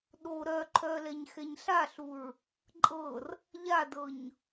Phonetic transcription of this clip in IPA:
ɗ o ɾ œ ǃʰ œ l ɛ ɲ x ɛ ɲ ɬ a ɬ u ɹ | ǃʼ ɤ r | ʎ a d ɤ ɲ

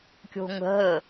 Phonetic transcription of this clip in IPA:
kʲ o̤ ŋ ə̤ ɦ ə

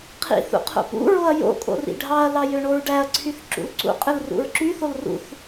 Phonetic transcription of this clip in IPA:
qʰ ḭ θ ṵ qʰ o̰ p ṵ ɹ o ɐ̯ j o̰ kʼ o̰ r ḭ ɖʱ ɑ ɐ̯ l ɑ j ø ɳ o ɹ ɖ æ ɐ̯ ǀʰ y θ ǁ ṵ l ǀ ṵ qʼ ɯ l r ṵ ɹ ǁ y θ o l r ṵ θ

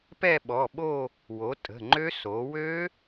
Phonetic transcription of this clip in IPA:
p ɛ˥˧ ɓ ɔ˩˧˩ ɓ o˥˧ | w o˩˧ tʼ ə̤˩˧˩ ŋ͡ǃ ø˦˥ s o˩˧ w ø˦˥

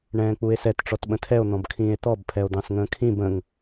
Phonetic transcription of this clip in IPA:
ɳ ɛ̃ː k͡p u e̯ s ɛ t ʈ͡ʂ ɔ t ɓ ə̃ tʰ ɛ o̯ n̪ ɔ̃ b kʰ ĩː e̯ t̪ ɔ b pʰ ɛ o̯ d̪ ɑ̃ s ŋ ə̃ː kʰ ĩ b ə̃ ŋ

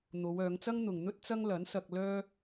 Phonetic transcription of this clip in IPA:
n̪ o˨˧ w œː˨˧ ŋ t͡s ɐ˥ ŋ n̪ ʊ˨ ŋ n̪ ɵ˥ t̚ t͡s ɐ˥ ŋ l ɐ˨˥ n s ɐ˧ k̚ l œː˥

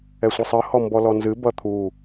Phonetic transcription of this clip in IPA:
ɛ sʷ ɨ sˤ ɨ h ɔ m b ɔ l ɔ n z ɨ b ʌ t̪ʰ u

